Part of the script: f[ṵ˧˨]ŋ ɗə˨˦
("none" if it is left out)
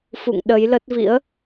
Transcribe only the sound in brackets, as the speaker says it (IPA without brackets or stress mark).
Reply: ṵ˧˨